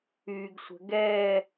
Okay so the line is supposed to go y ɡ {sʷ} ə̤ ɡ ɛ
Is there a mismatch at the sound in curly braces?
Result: no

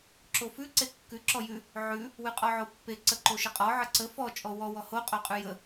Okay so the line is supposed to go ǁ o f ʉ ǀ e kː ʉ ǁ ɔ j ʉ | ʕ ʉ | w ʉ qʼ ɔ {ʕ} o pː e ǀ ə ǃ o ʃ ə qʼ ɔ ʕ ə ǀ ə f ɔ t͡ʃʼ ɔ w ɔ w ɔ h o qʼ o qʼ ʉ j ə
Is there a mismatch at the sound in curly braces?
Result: no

